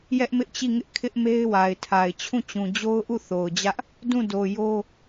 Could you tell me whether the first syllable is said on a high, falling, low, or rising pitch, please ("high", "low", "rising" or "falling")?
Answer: high